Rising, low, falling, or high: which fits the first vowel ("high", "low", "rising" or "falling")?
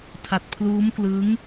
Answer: low